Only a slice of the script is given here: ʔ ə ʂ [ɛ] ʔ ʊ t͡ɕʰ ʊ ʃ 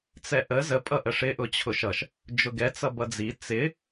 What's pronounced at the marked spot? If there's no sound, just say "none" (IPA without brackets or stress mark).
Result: ɪ